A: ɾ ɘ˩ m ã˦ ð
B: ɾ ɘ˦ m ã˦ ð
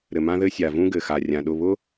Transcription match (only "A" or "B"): A